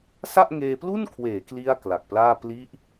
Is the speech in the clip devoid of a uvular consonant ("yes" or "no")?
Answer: yes